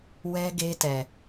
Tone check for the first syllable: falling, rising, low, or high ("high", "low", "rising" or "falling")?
high